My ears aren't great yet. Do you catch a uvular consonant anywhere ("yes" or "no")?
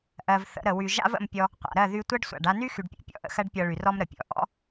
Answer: yes